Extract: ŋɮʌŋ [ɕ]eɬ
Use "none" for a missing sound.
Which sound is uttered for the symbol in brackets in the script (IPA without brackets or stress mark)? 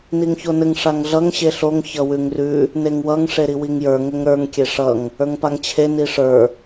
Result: ɕ